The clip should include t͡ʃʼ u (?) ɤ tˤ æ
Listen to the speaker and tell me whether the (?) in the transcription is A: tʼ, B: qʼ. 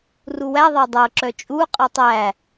B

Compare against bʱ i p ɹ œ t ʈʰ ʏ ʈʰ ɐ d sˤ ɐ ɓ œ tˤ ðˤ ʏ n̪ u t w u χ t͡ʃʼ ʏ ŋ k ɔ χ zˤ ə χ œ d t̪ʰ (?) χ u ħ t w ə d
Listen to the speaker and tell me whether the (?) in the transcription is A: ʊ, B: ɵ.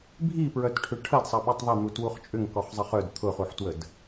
A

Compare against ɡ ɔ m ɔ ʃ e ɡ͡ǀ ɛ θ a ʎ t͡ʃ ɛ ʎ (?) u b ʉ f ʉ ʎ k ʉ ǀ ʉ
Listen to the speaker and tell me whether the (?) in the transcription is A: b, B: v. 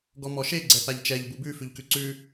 A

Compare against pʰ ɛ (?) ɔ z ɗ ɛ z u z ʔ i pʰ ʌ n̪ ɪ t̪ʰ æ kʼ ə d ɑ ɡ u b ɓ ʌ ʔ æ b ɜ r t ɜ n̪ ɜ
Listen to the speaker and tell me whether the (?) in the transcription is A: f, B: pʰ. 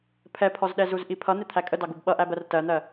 B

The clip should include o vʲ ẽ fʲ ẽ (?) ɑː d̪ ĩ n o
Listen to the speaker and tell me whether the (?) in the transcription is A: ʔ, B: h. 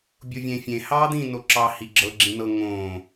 B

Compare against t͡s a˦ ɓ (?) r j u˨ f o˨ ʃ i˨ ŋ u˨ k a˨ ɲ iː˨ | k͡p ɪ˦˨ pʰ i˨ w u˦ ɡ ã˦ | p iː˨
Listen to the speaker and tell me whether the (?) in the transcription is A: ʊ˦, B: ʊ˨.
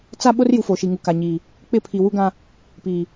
A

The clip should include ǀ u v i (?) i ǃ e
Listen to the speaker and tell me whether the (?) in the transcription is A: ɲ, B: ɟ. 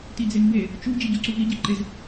B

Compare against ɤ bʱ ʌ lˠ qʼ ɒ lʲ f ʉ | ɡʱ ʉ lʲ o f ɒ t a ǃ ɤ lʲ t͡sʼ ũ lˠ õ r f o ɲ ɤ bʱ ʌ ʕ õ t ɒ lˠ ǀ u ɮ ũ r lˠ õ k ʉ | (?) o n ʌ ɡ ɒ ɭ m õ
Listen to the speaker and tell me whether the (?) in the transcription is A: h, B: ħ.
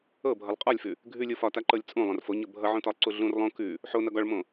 B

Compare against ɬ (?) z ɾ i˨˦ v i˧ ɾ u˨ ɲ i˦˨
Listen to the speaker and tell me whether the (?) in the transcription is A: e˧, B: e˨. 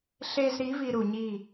A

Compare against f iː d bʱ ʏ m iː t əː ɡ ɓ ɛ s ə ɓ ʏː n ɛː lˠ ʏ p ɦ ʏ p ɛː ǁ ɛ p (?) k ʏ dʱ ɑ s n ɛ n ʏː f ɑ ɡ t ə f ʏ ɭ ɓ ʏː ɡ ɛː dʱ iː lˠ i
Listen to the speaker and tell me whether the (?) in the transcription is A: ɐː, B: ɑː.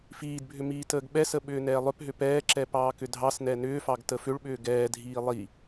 B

